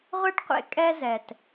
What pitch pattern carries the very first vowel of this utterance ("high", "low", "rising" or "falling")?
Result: high